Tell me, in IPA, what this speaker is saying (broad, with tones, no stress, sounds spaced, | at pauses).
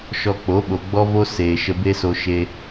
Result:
ʃ ɔ˧ k͡p o˨˦ ɓ o˨ ɡ͡b ɔ˦ v o˦ s eː˨ ʃ ə˧ b e˦ s o˧ ʃ e˧